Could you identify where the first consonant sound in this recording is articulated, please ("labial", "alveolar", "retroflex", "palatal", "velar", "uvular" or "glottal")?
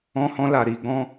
glottal